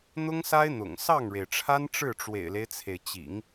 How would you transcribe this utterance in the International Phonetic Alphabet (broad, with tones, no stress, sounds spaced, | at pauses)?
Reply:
n̪ ʊ˥ ŋ s a˥ ɪ̯ n̪ ʊ̰˨˩ ŋ s ɑ˥˩ ŋ ɻ e˩ ɪ̯ ʈ͡ʂʰ a˥ n ʈ͡ʂ ɻ̩˥˩ ʈ͡ʂ w ḛ˨˩ ɪ̯ l e˦ ɪ̯ t͡sʰ e˩ ɪ̯ t͡ɕ ḭ˨˩˦ ŋ